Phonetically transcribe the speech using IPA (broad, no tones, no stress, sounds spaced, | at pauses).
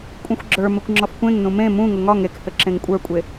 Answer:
kʷʼ ẽ xʷ ɡ͡ǁ ə˞ m ɘ kʷ ŋ͡ǁ ɒ f kʷ ẽ ŋ n ũ m ẽ m ũ ŋ ʊ ŋ ɒ ŋ e k h ɘ ǁ ẽ ŋ kʷʼ ə˞ kʷʼ e